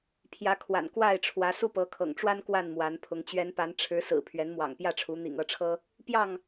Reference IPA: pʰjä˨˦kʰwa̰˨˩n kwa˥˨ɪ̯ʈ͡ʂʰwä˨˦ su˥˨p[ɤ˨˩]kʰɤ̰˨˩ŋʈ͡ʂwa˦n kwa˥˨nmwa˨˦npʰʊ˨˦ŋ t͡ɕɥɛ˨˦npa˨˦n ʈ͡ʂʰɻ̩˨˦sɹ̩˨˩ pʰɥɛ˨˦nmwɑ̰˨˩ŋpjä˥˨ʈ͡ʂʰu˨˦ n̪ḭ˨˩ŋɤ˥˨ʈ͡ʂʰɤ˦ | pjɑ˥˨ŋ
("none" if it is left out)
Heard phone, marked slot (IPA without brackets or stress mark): ɤ˨˦